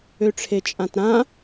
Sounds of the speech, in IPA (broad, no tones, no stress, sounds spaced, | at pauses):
ø ʈ͡ʂʰ e t͡ʃʼ ã t ɾ ã